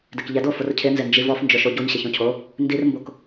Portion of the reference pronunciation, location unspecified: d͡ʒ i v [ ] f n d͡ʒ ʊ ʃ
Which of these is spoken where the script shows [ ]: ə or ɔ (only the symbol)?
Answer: ɔ